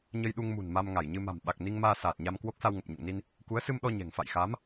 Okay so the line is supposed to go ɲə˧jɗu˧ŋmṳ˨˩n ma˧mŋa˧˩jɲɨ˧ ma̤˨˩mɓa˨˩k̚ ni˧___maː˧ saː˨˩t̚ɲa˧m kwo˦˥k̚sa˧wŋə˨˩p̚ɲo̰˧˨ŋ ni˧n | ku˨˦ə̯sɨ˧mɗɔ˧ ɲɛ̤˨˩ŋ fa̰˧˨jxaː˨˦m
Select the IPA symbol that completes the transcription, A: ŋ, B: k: A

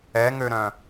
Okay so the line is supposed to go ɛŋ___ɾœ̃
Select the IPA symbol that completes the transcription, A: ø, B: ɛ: A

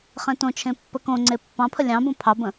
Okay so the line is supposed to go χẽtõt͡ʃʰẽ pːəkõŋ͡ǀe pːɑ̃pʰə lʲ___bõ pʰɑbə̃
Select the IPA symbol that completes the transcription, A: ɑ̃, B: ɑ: A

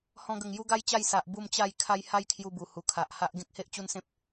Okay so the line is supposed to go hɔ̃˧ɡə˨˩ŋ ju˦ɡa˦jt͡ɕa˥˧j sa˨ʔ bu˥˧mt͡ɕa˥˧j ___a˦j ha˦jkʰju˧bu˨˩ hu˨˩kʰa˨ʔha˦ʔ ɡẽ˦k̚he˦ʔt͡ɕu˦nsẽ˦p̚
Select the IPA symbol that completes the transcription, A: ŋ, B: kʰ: B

